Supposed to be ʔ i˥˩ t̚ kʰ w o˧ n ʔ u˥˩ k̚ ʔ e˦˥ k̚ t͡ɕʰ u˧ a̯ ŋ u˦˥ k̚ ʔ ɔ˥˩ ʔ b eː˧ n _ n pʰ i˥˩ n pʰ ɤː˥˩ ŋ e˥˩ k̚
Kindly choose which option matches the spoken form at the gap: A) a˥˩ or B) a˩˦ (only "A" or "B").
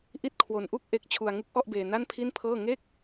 A